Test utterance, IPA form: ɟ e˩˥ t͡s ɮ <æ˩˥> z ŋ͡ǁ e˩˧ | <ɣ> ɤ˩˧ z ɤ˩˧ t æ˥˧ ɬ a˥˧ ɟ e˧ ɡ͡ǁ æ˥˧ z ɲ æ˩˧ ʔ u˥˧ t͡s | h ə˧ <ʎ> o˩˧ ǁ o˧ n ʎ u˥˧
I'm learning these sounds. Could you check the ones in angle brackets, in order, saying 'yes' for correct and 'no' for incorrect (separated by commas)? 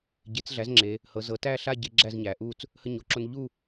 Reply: yes, no, no